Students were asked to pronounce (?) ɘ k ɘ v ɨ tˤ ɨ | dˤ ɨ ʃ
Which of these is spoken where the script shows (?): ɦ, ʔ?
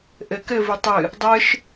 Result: ʔ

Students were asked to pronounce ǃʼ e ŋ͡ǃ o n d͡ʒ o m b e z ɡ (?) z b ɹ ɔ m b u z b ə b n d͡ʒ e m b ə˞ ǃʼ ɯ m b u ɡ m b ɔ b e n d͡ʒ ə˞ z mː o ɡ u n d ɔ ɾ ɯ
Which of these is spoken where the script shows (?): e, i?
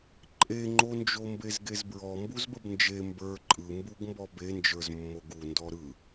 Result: e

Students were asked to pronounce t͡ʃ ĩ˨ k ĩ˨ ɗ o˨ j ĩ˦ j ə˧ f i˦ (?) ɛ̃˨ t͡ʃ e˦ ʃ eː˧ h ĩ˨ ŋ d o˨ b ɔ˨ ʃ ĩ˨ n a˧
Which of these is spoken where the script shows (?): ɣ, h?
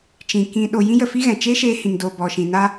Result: ɣ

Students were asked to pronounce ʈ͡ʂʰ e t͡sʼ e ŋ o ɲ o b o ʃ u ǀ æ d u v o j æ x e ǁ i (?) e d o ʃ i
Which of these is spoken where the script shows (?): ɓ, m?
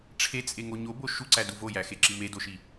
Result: m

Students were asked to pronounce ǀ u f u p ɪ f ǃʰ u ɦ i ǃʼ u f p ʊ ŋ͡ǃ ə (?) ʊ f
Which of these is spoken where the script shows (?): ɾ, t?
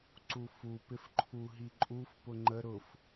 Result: ɾ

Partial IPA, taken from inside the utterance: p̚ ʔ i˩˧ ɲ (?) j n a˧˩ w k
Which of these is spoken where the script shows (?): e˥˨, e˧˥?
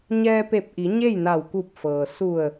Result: e˥˨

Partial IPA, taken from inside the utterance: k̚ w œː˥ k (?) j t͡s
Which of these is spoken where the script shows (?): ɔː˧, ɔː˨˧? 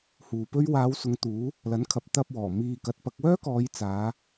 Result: ɔː˨˧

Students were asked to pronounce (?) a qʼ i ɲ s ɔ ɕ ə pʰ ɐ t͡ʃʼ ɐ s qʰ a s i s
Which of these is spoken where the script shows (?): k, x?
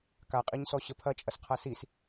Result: k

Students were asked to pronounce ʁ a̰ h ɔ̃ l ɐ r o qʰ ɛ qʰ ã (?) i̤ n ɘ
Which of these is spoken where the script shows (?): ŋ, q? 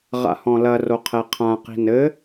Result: q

